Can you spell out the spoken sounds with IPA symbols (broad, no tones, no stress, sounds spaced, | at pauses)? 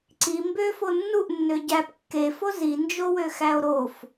ǀ i m b ø f o nː u ʔ nː ø ɟ æ p kː e f o z i n d͡ʒ o w ø x æ o̯ ɾ o f